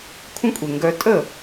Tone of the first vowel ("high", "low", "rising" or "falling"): high